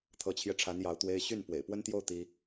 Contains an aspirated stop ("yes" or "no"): yes